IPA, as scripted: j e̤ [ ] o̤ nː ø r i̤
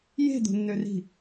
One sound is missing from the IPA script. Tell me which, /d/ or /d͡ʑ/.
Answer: d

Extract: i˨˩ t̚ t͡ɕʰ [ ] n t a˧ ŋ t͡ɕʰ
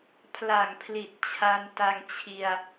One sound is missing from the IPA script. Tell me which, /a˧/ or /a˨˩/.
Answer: a˧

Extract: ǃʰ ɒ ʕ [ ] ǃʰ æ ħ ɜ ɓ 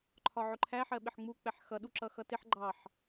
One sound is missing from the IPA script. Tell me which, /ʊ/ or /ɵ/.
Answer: ʊ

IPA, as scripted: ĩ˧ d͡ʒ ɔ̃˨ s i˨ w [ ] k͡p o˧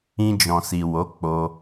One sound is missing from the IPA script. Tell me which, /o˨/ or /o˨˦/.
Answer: o˨˦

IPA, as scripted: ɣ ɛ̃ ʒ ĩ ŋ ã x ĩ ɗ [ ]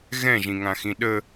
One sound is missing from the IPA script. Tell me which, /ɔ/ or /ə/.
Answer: ə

